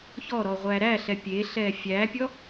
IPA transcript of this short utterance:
çɔɾɔ ʁʷæɾæɬɛ pʲeɬɛ fʲæpʲɔ

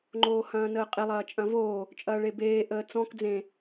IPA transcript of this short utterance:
ŋ͡ǃoːhɐ̃ːnəːqʼe lˠɐːt͡ʃʼɐ̃voː | t͡ʃʼɐːɭebeː ʔəːt͡sɔ̃k d͡zẽ

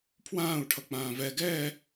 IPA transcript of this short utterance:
pʰwãːu̯ ʈʰʌk͡pãːvɛ ɡɛː

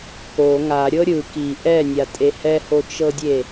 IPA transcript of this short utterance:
ko ŋaɾʲɤ ɾʲɯ ki ʔɛnʲatʼe hɛhot͡ʃɤdʲe

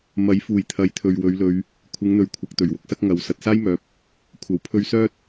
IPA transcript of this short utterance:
mɐ˨˥jfuː˨˩j t̪ʰɐ˨˥jt̪ʰɵ˨ɥwɵ˨˧ɥlɵ˨˧ɥ | kʷʰɪ˨˧ŋn̪ɵ˨ɥkʷʰɐ˨k̚ t̪ɵ˨˩ɥwʊ˨˥k̚sɐ˥k̚ ŋɐ˨˧w sɐ˨t̚saː˥jmœː˨˥p̚ | kʷʰɐ˨˩w pʰɵ˧ɥsœː˥t̚

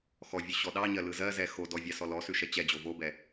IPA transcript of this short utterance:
xɔvʲʉ ɕɔɗɑɲɜ lɯzɜzɛ xodɔ vʲɑsɔlɔsʉ ʃɛt͡ɕɛd͡ʑo vobɛ

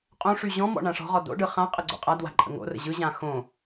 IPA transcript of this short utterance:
qʼõʂy ʑɔ̃mɔ̰ ɳãʂɔ̤ʁɔ do̰ɖɯ χã qʼəɡ͡ǀo̰qʼadwa̤ ǃʼə̰ŋo̰rə̰ ʑɯʑã xõ

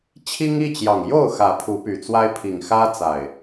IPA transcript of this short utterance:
t͡ɕʰi˦ŋi˥˨t͡ɕjɑ˨˩ŋ jo˥˨ʊ̯ xä˨˦pʰu˨˦py˨˩t͡swa˦ɪ̯ pʰi˨˩ŋxä˦t͡sa˨˩ɪ̯

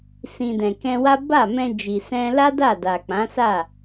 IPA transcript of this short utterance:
sĩ˨ dɛ̃˨kɛ̃˧wa˦ ba˦˨mɛ̃˧d͡ʒi˨sɛ̃˧ la˦da˦˨ da˨k͡pã˨˦ sa˦˨

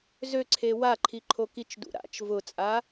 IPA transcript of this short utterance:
zøǀʰe waǃʰiǃʰo kit͡ʃdṵ ɾa̰t͡ʃ vʊt͡sʼa

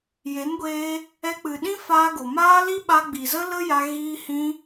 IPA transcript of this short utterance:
je˨˦nɡʷeː˧ | ɛ˧k͡pɨ˨ɗĩ˦ faː˧ɡo˨maː˦ li˦ɓa˧ɡ͡bi˨zə˦ lə˦ja˧ ɣiː˦hĩ˦

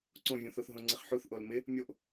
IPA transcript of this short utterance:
ǀõvʲũθoθ ɦõŋ͡ǀɪχħuθ ʔolmɪ | mʲoʔ

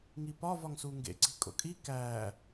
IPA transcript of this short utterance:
ŋipɒ vɒŋsuŋɡḛ ǀi̤kʼo̰kʼi kæ

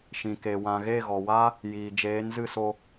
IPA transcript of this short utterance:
ʃĩ˨ke˨wã˧ ɣe˦˨ ɣɔ˨ wa˦ | jiː˨ d͡ʒeː˨˦nzɨ˦˨so˧

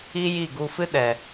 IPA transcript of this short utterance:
i˦ ji˦˨ɡu˧fɨ˦ ɗɛ˨

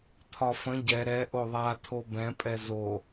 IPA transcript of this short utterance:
tʰɒfə̃ ɟɛ ɾɛ ʔoðˤatʰo bɛ̃pʼɛ zo

